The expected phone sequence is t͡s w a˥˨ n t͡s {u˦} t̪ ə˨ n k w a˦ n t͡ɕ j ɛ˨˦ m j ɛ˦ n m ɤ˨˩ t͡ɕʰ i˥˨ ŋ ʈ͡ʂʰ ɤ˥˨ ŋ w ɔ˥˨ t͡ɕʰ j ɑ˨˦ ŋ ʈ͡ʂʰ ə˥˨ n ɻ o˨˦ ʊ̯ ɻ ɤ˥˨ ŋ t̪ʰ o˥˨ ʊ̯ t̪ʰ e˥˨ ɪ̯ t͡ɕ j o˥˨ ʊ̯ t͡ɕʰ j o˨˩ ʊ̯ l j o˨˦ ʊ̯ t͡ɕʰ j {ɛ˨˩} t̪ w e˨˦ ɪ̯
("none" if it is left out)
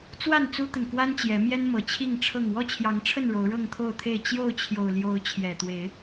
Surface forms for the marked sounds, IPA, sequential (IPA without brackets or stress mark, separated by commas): u˦, ɛ˨˩